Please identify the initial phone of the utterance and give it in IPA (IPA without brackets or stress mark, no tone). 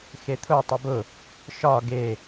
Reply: x